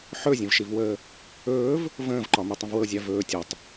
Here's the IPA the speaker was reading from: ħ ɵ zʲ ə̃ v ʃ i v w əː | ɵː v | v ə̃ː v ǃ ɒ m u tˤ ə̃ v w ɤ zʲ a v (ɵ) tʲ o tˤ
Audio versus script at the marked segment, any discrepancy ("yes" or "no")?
yes